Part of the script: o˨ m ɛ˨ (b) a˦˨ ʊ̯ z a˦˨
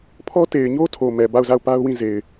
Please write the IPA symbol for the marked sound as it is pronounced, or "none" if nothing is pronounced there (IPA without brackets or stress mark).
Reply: b